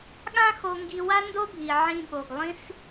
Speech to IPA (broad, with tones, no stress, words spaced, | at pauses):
ɠã˥xo˧ŋɡi˧ wa˥ndo˥bʱi˩ ʕĩ˧ɠo˩ɡ lˠĩ˥s